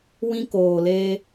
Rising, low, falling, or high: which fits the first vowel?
high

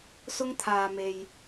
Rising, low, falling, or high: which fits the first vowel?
high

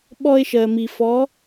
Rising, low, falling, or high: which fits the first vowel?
high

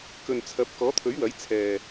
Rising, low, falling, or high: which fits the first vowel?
low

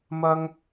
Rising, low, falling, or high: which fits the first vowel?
high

